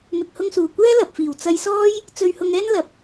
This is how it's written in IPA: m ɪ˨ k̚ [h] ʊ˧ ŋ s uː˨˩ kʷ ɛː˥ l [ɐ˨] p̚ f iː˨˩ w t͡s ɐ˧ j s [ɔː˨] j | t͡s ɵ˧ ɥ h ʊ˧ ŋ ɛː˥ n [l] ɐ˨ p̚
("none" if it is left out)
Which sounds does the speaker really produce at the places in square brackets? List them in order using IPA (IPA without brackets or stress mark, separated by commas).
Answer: h, ɐ˨, ɔː˥, l